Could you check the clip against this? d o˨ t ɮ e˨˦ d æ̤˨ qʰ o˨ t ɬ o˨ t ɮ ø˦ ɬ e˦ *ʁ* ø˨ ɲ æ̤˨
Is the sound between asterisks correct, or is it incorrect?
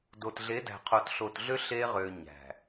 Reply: correct